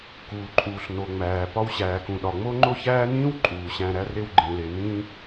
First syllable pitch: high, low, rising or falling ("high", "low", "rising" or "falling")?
low